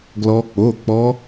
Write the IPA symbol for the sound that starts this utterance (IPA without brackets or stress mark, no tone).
ɡ